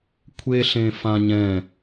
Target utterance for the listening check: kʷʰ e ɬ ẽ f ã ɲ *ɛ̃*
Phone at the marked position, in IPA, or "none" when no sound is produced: ɛ̃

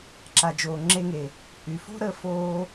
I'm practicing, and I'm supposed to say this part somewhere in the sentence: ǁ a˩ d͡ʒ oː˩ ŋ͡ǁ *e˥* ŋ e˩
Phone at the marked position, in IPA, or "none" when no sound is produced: e˧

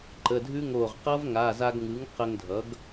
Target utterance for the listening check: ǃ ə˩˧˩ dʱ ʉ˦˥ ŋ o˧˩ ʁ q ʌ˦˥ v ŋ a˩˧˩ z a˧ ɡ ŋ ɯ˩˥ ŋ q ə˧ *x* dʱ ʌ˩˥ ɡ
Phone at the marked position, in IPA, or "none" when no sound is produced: ŋ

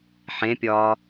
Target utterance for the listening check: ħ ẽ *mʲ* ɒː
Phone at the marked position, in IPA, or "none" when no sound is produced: pʲ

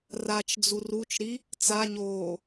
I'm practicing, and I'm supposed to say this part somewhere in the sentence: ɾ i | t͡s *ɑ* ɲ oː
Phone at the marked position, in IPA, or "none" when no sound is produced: a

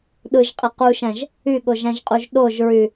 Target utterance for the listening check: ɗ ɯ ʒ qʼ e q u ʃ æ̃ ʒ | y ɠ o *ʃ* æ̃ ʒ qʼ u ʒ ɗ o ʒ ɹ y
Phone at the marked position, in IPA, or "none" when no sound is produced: ʒ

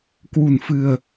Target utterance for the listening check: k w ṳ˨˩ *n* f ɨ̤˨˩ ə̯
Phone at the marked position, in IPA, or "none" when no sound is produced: n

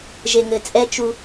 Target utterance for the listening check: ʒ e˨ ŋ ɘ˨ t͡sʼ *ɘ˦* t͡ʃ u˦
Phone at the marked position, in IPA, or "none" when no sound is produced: ɛ˦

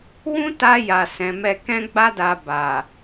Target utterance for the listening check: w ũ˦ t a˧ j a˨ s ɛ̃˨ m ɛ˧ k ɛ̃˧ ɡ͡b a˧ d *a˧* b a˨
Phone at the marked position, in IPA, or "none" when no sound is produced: a˨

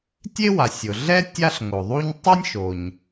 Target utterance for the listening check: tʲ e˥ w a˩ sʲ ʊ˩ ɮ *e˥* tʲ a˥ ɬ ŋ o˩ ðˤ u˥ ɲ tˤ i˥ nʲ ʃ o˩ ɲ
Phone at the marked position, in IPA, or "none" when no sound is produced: ɛ˥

